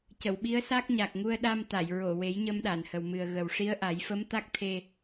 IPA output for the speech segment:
c ə˨˩˨ w ɓ i˧˥ ə̯ s a˦˥ k̚ ɲ a˨˩ k̚ ŋ u˧ ə̯ ɗ a˧ m t̪ a˨˩˨ j ɹ o˨˩˨ w e˨˩˦ j ɲ ə˧ m ɗ a˨˩˨ n h ə˨˩ w m ɨ˨˩ ə̯ ɣ ə˨˩ w ʂ i˧˥ ə̯ ʔ a˨˩˦ j f ə˧˥ m t̪ a˦˥ k̚ t̪ʰ e˧

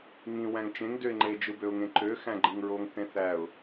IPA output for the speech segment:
ŋ ĩ w æ̃ ŋ t͡ʃ ẽ ŋ d ø ɪ̯ ŋ͡ǃ e d͡ʒ ɯ b ø ʊ̯ ŋ ẽ ǃ ø x æ̃ ɡ͡ǃ ɯ ŋ ɹ o ŋ θ ẽ θ æ ʊ̯

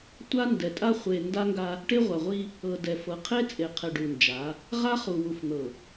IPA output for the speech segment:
tʷ a˦ n d ɛ˨ tʼ a˦ χʷ e˨ n d a˦ ŋ ɡ a˦ | ʈ e˦ ʁʷ a˨ ʁʷ i˦ | ɤ˨ d ɛ˨ f ɤ˨ qʰ e˦ t͡sʼ e˨ qʰ ɛ˨ ɖ u˨ n d͡ʒ a˨˦ | ʁ a˦ χ u˨ w u˨ f n̪ ɤ˨

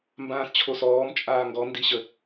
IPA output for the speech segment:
m b ãː s t͡ɕʰ o s ɔː m t͡ʃʼ aː ŋ ɡ ɔ n d i ɕ ə

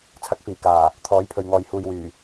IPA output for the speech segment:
t͡sʰ ɐ˨˥ k̚ f iː˨˩ k aː˨˩ | t̪ʰ ɔː˨˥ j pʰ ɵ˨ ɥ ŋ ɔː˨ j h uː˨ j w yː˨˩

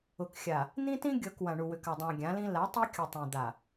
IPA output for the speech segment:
ʊ˨ k xʲ a˨ | n̪ ĩ˦ t ĩ˦ ɡʲ ɤ˨ k w ã˨ ɳ u˨ w ʏ˨ k a˨ dˤ ã˨ ɡʲ ã˨˦ l ĩ˦ l a˨˦ tˤ i˦ kʲ ʊ˨ tˤ ũ˨ d̪ a˨

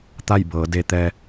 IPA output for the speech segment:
t̪ a˥˨ j b ɤː˩˧ d e˧ t̪ ɛː˧

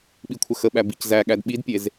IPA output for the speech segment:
ɓ i kʷʰ ə x ə ɓ æ b i c z æ ɠ æ d ɓ i d pʲ e z

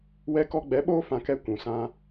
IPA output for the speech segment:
w ɛ˧ k ɔ˧ ɡ͡b ɛ˨˦ ɓ oː˦ f ã˧ k ɛ˦ kʷ ũ˨ s ã˦

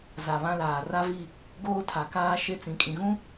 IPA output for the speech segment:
z a˨ β ã˦ l aː˨ r a˦ v i˦˨ | ɡ oː˦ tʰ a˨ k aː˦ ʃ e˦ t͡s ĩ˨ kʼ ĩ˨ ɣ ũ˦

